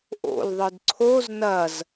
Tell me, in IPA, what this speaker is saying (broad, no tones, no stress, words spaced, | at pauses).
ʔo̰l ðˤɯdǀʰoz nɐz